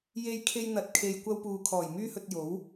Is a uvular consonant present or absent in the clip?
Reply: absent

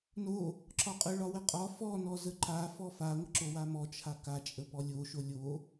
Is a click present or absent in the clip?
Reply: present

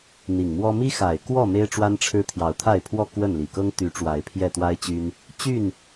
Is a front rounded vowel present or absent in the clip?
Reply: present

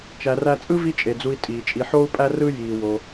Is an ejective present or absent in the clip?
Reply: present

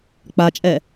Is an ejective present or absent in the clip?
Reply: present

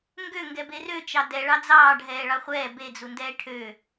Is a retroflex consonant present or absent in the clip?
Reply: present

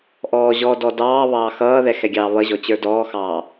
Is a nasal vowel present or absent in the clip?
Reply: absent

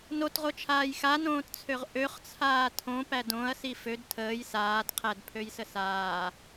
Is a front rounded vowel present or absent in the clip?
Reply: present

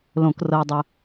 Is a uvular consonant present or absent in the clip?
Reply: absent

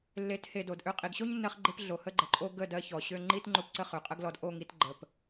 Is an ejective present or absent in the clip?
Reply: present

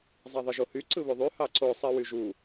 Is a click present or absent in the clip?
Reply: present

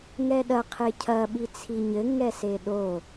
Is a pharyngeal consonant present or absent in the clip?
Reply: absent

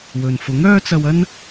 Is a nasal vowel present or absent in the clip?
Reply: absent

